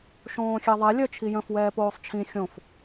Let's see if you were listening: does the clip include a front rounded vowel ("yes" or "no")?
yes